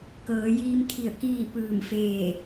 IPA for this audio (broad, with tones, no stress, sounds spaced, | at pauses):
k ɤː˩˧ j iː˧ m t̪ʰ i˧˩ ə̯ k iː˥˨ p ɯː˧˩ m f eː˧˩